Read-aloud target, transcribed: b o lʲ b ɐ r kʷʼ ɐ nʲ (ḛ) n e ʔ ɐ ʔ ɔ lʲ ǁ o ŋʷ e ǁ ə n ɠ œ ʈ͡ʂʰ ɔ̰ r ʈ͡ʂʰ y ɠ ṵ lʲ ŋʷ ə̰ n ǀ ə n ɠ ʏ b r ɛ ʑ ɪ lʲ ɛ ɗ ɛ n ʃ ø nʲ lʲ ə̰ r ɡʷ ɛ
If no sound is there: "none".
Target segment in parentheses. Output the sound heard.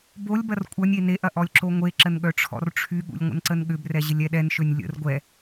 e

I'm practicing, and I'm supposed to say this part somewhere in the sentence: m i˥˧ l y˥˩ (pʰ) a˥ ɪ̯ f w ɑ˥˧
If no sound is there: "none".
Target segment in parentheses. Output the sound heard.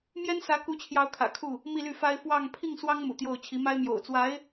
f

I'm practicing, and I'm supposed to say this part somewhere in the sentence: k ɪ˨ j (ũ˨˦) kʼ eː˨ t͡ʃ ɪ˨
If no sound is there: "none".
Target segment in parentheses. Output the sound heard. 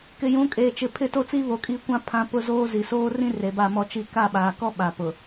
ũ˨˦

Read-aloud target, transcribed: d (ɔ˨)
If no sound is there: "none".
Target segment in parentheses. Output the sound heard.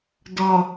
ɔ˨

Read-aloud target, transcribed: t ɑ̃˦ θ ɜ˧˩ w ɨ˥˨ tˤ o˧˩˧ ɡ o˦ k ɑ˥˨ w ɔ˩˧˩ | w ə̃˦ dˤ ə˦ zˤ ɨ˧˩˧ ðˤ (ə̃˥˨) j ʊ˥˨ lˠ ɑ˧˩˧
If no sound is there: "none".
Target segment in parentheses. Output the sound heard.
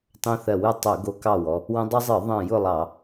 ə̃˧˩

